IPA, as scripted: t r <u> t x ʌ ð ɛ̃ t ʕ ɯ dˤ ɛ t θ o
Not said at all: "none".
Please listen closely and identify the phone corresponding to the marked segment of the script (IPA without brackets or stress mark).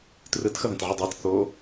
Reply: ɯ